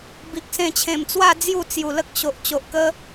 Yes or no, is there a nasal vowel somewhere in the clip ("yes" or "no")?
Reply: yes